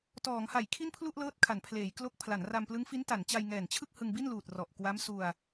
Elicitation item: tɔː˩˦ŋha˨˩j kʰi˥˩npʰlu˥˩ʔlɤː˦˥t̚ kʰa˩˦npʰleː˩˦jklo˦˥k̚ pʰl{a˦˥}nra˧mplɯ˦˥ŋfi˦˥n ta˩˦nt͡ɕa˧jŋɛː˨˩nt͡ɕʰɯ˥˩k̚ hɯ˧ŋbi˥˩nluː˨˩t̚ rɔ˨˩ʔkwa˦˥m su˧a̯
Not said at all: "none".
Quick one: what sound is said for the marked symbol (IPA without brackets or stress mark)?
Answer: a˩˦